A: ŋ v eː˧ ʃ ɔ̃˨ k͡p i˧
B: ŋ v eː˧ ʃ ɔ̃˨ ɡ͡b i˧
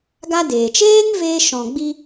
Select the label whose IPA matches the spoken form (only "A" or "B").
B